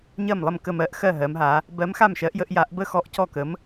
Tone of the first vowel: falling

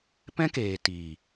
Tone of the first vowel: high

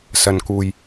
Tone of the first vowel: low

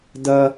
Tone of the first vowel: high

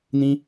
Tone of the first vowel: high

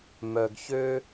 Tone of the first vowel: low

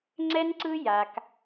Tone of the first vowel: high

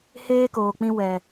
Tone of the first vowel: high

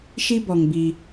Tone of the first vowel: high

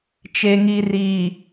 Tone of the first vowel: low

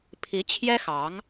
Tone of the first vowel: rising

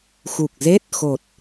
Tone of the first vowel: low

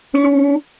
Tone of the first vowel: high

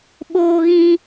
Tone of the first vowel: high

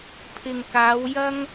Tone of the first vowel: low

